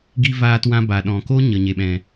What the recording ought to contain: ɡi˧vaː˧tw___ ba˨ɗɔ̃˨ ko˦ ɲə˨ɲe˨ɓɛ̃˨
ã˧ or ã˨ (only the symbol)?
ã˧